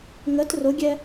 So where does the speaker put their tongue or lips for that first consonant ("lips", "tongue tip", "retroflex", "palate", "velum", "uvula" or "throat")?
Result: velum